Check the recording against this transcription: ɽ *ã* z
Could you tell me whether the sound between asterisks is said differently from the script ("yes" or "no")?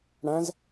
no